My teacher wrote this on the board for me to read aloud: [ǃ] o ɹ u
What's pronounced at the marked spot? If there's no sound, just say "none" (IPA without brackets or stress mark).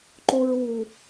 ǃ